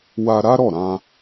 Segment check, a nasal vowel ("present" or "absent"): present